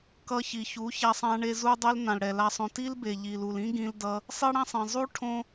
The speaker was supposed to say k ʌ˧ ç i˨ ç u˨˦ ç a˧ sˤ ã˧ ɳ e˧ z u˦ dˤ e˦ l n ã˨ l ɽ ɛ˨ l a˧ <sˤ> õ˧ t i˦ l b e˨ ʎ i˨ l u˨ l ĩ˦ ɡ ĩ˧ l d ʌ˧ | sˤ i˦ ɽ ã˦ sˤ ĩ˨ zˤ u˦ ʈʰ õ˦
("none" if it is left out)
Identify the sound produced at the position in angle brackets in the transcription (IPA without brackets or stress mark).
sˤ